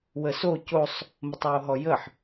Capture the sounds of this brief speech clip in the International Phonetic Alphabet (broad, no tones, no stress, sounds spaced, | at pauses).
w ə s o c o sˤ | m ə tˤ w o ɦ ɔ j ə ħ